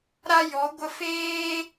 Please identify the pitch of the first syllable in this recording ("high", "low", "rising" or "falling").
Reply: high